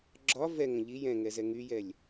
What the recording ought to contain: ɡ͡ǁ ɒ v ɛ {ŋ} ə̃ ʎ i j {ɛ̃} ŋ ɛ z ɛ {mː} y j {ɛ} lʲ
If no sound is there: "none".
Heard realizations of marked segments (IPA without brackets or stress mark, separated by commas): ŋ, ɛ̃, ŋ, ɛ